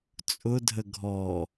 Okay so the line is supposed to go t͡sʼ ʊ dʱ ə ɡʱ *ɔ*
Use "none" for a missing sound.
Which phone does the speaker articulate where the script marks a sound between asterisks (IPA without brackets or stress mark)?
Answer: ɔ